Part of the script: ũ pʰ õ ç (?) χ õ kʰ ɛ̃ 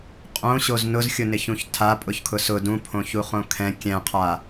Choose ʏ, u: u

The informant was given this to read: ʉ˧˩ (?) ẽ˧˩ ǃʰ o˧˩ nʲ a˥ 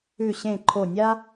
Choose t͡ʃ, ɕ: ɕ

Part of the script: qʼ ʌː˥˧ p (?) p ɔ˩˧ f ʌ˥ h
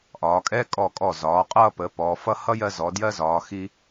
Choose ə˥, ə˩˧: ə˩˧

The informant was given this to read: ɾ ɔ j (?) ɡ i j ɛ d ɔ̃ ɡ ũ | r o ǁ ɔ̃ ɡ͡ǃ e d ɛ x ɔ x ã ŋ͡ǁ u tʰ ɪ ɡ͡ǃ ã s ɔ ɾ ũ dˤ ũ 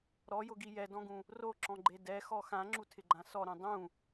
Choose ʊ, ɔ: ʊ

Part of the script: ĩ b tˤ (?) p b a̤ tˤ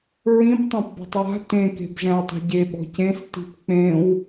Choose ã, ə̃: ã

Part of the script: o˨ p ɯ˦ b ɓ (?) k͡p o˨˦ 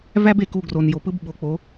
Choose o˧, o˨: o˨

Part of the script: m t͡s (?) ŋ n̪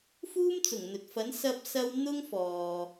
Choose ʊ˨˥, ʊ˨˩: ʊ˨˩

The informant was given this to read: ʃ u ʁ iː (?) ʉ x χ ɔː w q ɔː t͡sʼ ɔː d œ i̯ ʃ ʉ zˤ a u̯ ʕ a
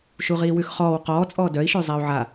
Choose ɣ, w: w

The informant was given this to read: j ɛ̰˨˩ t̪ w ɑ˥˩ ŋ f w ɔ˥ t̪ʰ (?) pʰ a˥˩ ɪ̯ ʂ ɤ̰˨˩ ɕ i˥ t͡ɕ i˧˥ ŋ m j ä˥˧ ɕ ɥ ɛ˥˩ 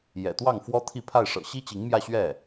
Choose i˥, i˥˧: i˥˧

